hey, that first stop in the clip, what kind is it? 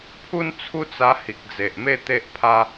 aspirated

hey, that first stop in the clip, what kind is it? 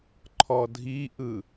click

